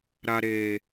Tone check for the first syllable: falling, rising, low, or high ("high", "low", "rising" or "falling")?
high